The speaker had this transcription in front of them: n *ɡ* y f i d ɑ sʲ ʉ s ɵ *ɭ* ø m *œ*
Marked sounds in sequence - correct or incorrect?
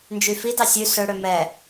incorrect, incorrect, incorrect

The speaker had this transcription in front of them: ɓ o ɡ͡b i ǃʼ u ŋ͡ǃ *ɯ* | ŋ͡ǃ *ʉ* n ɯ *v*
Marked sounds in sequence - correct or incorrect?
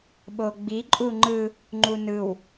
correct, incorrect, incorrect

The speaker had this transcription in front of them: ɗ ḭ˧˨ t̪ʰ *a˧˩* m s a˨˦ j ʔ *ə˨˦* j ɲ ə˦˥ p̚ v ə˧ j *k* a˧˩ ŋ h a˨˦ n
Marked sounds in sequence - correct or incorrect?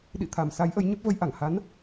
correct, correct, incorrect

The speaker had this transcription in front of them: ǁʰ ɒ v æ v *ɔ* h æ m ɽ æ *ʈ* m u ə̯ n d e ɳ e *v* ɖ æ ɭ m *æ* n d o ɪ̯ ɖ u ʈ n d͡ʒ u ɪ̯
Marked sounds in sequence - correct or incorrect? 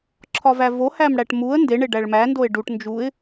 incorrect, correct, incorrect, correct

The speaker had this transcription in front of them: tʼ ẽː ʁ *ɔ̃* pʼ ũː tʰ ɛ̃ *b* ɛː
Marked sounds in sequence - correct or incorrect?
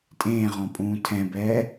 correct, correct

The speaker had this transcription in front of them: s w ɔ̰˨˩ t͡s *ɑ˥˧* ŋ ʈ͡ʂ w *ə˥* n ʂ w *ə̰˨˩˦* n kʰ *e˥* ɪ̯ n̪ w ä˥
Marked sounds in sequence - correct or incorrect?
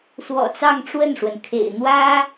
correct, incorrect, incorrect, incorrect

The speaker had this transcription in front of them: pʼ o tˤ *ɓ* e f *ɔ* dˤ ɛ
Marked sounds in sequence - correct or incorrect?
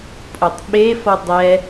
correct, correct

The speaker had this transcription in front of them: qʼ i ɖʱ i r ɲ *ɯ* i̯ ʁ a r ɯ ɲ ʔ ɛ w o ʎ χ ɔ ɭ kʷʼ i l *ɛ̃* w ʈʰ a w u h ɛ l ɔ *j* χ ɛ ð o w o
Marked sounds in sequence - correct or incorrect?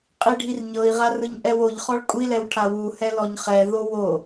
incorrect, incorrect, incorrect

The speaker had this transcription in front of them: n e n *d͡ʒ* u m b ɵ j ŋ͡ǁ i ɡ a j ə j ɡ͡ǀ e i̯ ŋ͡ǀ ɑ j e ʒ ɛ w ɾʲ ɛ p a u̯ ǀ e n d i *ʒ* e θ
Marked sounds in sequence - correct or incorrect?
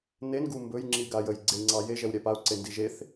incorrect, correct

